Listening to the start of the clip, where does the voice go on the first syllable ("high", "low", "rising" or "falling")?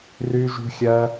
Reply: high